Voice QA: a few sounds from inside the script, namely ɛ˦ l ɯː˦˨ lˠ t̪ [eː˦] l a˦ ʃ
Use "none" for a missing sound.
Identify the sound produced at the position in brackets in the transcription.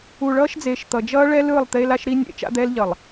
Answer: eː˦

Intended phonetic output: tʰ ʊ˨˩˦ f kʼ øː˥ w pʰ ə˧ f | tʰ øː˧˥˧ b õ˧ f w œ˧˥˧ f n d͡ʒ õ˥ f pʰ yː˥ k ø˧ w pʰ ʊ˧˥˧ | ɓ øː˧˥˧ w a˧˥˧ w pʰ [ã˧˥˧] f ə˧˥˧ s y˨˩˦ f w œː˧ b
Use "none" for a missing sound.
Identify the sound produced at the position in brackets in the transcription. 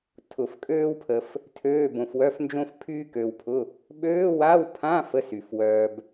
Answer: ã˧˥˧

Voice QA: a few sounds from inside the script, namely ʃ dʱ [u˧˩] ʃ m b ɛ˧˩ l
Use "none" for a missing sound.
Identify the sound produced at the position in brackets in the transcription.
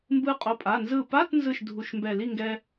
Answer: u˧˩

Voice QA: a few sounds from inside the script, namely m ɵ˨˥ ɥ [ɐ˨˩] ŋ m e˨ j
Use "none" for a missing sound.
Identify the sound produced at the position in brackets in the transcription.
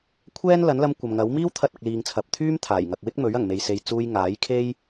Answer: ɐ˨˩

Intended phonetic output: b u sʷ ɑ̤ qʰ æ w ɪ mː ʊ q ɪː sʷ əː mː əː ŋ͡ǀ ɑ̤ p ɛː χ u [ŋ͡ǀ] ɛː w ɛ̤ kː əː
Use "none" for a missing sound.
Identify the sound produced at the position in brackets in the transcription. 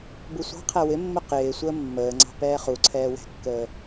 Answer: ǀʰ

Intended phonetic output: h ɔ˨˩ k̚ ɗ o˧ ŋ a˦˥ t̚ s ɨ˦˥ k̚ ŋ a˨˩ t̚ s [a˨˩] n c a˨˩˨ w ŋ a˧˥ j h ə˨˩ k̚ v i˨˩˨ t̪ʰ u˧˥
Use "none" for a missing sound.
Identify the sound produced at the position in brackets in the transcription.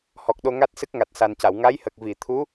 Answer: a˨˩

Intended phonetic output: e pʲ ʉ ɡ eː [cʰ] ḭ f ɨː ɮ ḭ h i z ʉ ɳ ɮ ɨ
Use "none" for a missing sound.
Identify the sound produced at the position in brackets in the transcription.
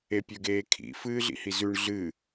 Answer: kʰ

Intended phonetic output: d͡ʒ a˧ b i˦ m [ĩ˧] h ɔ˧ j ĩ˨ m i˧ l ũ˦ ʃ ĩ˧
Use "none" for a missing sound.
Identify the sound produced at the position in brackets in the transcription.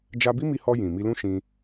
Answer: i˧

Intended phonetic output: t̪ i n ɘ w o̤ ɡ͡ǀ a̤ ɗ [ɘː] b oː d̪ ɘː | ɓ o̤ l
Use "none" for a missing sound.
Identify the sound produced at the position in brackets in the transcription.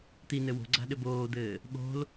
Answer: ɘ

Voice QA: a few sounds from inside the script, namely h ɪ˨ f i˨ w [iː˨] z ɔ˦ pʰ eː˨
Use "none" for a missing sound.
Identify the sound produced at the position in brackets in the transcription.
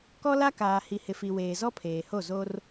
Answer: eː˨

